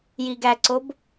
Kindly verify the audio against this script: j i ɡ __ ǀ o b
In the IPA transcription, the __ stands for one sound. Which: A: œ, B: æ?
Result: B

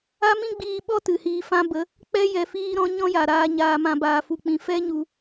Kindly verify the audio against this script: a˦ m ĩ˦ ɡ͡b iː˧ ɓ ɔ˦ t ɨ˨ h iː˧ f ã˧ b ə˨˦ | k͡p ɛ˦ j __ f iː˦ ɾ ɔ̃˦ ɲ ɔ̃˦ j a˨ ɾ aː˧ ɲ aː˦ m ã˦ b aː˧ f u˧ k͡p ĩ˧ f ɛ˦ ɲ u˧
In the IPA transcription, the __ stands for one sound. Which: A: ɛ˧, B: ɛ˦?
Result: A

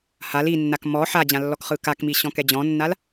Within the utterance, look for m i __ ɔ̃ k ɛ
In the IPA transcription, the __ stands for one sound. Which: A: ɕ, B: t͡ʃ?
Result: A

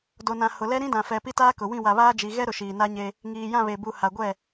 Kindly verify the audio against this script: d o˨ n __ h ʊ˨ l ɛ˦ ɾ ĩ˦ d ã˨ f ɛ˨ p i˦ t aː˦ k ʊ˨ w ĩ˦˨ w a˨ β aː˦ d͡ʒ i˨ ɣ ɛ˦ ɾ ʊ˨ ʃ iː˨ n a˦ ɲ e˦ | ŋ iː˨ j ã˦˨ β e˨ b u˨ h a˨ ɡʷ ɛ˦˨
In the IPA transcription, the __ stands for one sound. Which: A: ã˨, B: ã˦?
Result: A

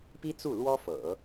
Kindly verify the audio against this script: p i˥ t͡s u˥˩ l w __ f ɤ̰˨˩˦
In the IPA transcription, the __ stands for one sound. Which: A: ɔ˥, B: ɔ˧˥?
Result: A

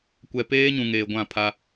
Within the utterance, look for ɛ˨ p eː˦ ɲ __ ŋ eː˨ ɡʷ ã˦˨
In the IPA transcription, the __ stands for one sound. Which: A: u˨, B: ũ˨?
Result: B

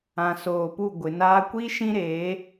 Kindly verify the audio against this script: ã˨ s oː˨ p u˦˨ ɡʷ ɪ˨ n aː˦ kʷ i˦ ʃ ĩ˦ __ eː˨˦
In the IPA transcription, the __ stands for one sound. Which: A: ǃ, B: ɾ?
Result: B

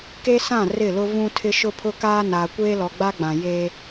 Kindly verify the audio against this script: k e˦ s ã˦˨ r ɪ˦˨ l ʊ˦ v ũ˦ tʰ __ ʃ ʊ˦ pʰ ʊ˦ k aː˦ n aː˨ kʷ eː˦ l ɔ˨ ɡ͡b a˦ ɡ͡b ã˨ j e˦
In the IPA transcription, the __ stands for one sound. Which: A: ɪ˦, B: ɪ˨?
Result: A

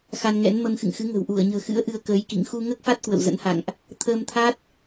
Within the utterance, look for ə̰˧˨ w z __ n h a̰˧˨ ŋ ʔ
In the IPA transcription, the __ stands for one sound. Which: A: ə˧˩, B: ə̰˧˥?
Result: B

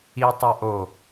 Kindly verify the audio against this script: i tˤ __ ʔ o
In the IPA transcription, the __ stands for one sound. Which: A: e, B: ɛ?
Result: B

